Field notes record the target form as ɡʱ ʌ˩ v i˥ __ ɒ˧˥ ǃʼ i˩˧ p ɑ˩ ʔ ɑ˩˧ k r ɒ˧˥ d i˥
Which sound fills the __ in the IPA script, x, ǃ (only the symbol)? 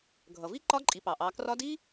ǃ